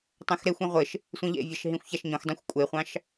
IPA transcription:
tˤ ɛ̃ x ɾ e xʷ ĩ ʁʷ ɘ ʃ | sʷ ĩ ʎ ḛ vʲ ɑ ʃ ɦ ĩ xʷ ç a ʃ ɲ õ x dˤ ĩ xʷ kʷʼ e χʷ ɑ̃ ʃ

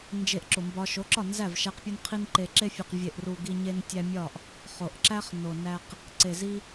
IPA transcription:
n d͡ʒ e˧ ʔ ǁ o˨ m b ɒ˧ ʃ o˨˦ ǁ ɒ˦˨ n z æ˦˨ v ʃ æ˦ q pʲ u˦ n qʰ i˦ n ǃ e˨ ǁ e˧ fʲ e˨ q vʲ e˨ ʔ r u˨ ɡ i˧ ɲ e˧ n tʲ æ˧ mʲ ɒ˦˨ ʔ | χ o˨ ʔ ǁ æ˦ χ n o˨ n æ˧ q | ǀ e˨ z i˧

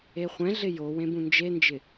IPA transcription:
e χʷ ɛ̃ ɮ ɪ j o w ẽ b ũ n d͡ʒ e n d͡ʒ ɪ

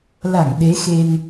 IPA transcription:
l a˧˩ ŋ ɗ e˨˦ x e˧ n

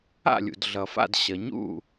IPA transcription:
a̰˥˩ lʲ ṵ˩ d ɮ ʌ˩ f a̰˥˩ d ɕ ʌ˩ ɲ ṵ˥˩

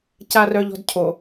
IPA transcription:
c a r œ ʎ ɔ̤ d cʰ o

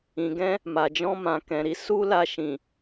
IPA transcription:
ĩ˨ ɡ ɛ̃˧ | m a˨ d͡ʒ ɔ̃˧ m ã˨ k ɛ̃˨ ɾ i˧ s u˦ l a˧ ʃ ĩ˨

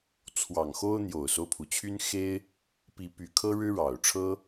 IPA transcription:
t͡sʰ w ɑ˨˩ ŋ x o˦ ʊ̯ n̪ j o˨˩ ʊ̯ s o˦ ʊ̯ pʰ u˩ t͡ɕʰ y˦ n x e˦ ɪ̯ | p i˨˦ p y˨˩ kʰ ɤ˦ ɻ ɻ̩˦ ɻ ɑ˨˩ ʊ̯ ʈ͡ʂʰ ɤ˦

